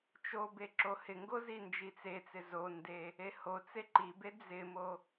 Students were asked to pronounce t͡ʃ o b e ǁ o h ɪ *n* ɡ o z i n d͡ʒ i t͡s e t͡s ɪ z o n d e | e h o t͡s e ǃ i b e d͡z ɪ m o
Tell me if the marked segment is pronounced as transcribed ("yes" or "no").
no